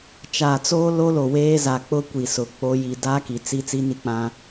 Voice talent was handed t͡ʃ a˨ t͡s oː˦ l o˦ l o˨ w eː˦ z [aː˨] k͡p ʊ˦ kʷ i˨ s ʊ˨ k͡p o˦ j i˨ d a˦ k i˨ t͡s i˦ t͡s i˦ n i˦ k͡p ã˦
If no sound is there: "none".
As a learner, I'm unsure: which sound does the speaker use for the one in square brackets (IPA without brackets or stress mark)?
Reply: a˨